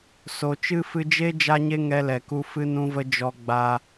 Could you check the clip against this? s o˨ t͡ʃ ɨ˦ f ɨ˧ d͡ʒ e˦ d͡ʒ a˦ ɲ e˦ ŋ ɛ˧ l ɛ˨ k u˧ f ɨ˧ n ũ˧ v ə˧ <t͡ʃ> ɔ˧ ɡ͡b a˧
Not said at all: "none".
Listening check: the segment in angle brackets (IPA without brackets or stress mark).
d͡ʒ